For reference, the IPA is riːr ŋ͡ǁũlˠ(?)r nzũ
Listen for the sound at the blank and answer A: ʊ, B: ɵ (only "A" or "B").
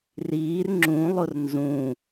A